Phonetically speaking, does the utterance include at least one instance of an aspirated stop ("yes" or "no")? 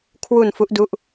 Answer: yes